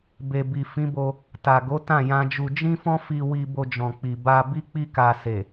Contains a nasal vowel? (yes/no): yes